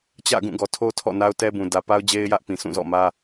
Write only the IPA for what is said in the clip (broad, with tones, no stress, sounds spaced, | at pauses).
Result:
t͡ɕ ä̰˦˨ ɡ ũ˦˨ ɡ ɔ˨ tʰ o˦ tʰ ɔ̰˦˨ n a˦ ʊ̯ t ɛ˦ b ũ˨ d ä˨ p a˦ ʊ̯ d͡ʑ e˦ ɪ̯ j ä˦ ʔ p ĩ˨ sʰ ũ˦˨ z ɔ̰˦˨ m ä˦